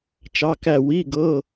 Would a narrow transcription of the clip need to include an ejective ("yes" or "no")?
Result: no